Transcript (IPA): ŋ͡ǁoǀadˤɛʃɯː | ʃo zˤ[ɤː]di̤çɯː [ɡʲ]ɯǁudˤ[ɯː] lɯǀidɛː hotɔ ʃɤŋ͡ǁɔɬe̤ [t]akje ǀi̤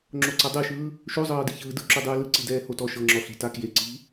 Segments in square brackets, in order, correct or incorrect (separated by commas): correct, incorrect, correct, correct